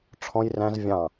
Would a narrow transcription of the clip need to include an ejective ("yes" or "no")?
no